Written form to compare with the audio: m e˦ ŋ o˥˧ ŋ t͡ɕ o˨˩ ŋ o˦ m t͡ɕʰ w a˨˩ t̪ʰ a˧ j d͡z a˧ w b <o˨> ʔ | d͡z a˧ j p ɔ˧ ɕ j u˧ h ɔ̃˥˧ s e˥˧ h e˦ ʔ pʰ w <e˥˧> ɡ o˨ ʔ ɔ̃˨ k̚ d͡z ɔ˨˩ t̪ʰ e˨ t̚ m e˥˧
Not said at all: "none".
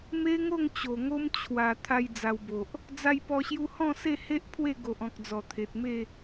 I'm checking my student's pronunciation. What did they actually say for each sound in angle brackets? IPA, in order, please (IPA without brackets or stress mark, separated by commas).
o˨, e˥˧